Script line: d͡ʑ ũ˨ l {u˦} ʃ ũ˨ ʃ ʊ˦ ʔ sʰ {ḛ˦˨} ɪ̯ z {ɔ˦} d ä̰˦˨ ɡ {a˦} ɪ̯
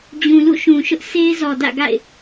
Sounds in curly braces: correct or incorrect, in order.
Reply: incorrect: ṵ˦˨, incorrect: e˦, incorrect: ɔ˨, incorrect: a̰˦˨

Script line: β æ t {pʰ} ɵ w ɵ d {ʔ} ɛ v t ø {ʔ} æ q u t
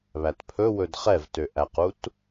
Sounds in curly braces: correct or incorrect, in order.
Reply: correct, incorrect: χ, correct

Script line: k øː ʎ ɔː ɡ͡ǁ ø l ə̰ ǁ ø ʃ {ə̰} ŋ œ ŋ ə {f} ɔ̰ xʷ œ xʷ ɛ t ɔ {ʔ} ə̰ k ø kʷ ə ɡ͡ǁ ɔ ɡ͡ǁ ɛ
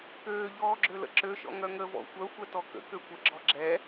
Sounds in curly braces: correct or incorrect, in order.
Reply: incorrect: ɔ̰, incorrect: v, incorrect: k

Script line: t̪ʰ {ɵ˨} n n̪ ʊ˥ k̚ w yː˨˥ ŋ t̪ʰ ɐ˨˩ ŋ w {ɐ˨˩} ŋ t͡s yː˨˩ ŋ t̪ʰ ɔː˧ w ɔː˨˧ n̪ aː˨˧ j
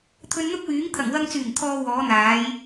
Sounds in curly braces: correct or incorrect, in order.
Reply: incorrect: ɵ˧, incorrect: ɐ˧

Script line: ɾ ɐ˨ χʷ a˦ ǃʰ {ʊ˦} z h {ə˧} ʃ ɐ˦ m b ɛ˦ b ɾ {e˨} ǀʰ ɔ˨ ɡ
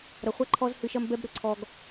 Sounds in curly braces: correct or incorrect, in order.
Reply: incorrect: ɔ˦, incorrect: ɨ˧, incorrect: ɘ˨

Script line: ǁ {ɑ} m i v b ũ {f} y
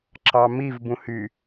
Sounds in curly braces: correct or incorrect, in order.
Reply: correct, incorrect: h

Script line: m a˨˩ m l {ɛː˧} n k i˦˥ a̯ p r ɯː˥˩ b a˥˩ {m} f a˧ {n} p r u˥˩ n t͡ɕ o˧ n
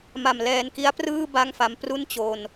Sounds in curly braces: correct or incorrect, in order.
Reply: correct, incorrect: ŋ, incorrect: m

